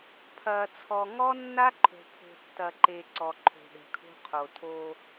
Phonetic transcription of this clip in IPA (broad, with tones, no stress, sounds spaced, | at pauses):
pʰ ɐː˨ t͡sʰ ɔ˨ ŋ ɔ˦ nː a˦ ǃʰ o̤˨ pʰ o̤˨ tː ɐ˨ ǃ e˨ ǀ ɔ˨ ǃʰ o̤˨ ɗ ɛ̤˨ kʰ o̤˦ qʰ o˨ tʰ o˦